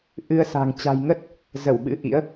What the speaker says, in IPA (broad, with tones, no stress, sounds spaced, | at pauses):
ʔ ɨ˧ ə̯ s a̤˨˩ ŋ t͡ɕ a̤˨˩ j ŋ ə˦˥ t̚ | z ə˧˩ w ɓ ɨ̰˧˥ ʔ ḭ˧˥ ə̯